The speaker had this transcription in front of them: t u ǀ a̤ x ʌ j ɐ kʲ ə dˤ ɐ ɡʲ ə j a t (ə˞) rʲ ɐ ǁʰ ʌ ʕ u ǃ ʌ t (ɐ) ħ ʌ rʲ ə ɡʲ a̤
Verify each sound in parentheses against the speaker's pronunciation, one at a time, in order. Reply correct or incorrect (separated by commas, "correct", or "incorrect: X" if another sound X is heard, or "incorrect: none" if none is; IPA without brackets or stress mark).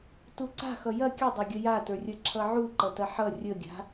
correct, correct